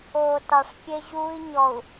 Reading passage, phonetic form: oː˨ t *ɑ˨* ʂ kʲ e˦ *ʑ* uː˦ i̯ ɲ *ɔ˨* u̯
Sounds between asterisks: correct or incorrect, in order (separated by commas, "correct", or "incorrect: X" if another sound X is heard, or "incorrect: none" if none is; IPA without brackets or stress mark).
correct, correct, correct